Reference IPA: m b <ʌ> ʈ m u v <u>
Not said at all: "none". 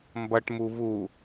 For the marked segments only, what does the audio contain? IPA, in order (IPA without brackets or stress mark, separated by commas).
ʌ, u